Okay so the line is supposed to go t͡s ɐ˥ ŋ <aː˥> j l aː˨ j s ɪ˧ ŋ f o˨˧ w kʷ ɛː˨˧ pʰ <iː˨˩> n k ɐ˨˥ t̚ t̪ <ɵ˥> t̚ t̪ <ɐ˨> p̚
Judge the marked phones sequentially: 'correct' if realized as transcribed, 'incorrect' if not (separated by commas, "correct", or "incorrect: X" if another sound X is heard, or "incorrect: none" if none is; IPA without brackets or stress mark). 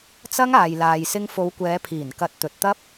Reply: incorrect: aː˨, correct, incorrect: ɵ˨, incorrect: ɐ˥